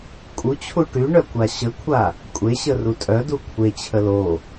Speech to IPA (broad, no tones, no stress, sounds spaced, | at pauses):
kʼ u t͡ɕʰ u ʈ y ɳ œ kʷ a ɕ ə kʷʰ a | kʷʼ e ɕ ə r u tʼ œ d u kʷʰ e t͡ɕʰ ə l o